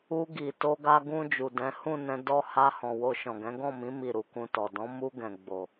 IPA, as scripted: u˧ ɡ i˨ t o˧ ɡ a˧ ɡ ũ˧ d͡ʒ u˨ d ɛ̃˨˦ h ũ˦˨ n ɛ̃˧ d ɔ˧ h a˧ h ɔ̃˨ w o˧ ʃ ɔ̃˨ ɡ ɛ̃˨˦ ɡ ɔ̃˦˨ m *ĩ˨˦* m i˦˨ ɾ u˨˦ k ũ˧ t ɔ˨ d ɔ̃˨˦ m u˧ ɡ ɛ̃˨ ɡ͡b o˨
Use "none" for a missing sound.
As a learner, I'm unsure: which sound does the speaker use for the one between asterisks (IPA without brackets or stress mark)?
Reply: ĩ˨˦